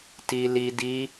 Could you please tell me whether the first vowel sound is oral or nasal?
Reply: oral